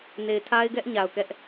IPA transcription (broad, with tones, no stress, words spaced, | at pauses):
ne˨ɪ̯tʰa˦ɪ̯ɡɛ˦ʔ ɲa˨ʊ̯kɛ˦ʔ